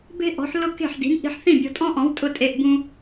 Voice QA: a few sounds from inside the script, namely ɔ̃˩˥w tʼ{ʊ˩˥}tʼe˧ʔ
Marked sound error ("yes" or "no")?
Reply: yes